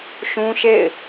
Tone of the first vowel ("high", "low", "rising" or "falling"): high